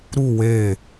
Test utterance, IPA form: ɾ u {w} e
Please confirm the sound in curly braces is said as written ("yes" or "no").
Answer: yes